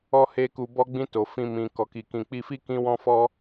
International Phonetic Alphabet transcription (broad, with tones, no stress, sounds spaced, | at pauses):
ɔ˦ h e˦ k u˧ b ɔ˧ ɡ͡b ĩ˧ t o˨ f ĩ˧ m ĩ˨ k ɔ˨ k i˨ k ĩ˨ k͡p i˧ f i˦ k ĩ˧ w ɔ̃˧ f ɔ˧